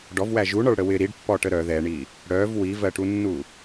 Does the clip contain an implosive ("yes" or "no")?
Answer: no